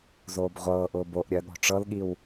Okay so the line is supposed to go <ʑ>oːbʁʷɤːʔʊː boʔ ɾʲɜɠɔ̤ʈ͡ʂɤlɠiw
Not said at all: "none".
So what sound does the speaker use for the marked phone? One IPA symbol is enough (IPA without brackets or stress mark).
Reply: z